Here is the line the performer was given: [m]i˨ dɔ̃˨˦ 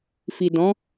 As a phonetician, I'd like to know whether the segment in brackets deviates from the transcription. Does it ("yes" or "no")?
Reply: yes